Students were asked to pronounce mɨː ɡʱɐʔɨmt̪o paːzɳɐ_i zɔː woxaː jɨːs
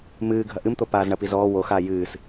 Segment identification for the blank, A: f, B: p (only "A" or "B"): B